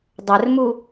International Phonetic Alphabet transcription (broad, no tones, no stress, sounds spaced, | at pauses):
dˤ ɘ r m u